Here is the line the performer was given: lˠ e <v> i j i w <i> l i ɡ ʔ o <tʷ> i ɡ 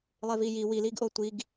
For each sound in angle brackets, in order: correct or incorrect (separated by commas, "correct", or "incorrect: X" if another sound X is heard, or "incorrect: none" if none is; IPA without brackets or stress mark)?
correct, correct, correct